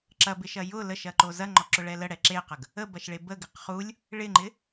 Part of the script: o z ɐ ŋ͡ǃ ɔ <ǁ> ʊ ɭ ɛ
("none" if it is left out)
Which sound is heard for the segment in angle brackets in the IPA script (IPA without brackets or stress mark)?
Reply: ǁ